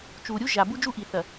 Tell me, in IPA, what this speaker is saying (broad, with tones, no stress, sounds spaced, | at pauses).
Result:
t͡ʃ u˨ ɾʲ u˦ ʒ a˨ b u˦ d͡ʒ u˦ ʔ i˨ θ ɐ˨